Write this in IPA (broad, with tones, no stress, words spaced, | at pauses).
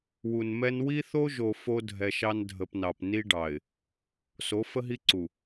wu˨nmɛ˦n wi˦θo˦ʒo˨ fo˦dʱɛ˨ʃɑ˦n dʱə˨pnɑ˨p ni˦ɖɑ˨ɪ̯ | so˨˦fə˦ɦi˦ǀu˨